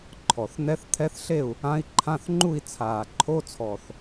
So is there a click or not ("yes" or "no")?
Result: yes